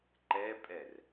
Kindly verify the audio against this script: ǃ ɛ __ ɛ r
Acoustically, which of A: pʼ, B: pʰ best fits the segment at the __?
A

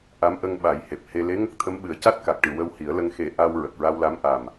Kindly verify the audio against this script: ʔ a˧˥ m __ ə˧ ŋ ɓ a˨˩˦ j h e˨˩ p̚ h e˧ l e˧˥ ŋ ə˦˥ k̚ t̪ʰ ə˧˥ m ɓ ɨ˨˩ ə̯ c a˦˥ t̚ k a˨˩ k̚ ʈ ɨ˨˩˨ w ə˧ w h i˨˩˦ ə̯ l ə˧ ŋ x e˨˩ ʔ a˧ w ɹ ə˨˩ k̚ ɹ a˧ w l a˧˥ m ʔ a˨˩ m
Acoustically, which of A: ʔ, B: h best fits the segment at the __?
A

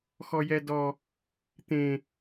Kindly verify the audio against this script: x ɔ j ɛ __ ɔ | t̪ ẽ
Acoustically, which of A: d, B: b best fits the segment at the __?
A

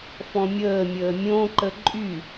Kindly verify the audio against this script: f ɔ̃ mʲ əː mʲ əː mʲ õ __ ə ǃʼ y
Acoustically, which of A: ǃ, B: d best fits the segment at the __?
A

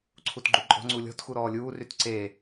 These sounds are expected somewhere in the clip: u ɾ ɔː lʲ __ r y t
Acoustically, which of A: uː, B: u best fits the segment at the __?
A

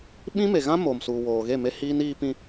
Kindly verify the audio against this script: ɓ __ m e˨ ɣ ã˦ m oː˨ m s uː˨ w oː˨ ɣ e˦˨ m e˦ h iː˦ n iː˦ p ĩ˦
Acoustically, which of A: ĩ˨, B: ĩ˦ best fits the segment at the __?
B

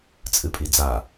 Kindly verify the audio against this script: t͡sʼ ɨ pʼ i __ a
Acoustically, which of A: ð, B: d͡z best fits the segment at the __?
B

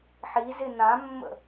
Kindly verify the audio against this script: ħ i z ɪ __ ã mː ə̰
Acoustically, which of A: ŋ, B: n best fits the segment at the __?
B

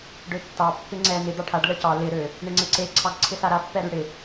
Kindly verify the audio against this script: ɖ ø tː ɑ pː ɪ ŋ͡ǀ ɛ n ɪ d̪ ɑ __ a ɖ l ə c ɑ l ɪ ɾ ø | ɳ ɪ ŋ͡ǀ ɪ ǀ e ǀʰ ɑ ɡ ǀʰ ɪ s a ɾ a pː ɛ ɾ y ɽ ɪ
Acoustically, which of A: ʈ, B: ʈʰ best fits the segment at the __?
B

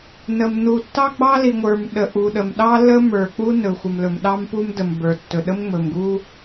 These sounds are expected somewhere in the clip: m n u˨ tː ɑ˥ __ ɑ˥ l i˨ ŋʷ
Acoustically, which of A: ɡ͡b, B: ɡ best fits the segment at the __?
A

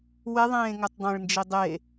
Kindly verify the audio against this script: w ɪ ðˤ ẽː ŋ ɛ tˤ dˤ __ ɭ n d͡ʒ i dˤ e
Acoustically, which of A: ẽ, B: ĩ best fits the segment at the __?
A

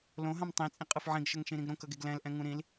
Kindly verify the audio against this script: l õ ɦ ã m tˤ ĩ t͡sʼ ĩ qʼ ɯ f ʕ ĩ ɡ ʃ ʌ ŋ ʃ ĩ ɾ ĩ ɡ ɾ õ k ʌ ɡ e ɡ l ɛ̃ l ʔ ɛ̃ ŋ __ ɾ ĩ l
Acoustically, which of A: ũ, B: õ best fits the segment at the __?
A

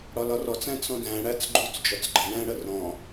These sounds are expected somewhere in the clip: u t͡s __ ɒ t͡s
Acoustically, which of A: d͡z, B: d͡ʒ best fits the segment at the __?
B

